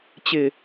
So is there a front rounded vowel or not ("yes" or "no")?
no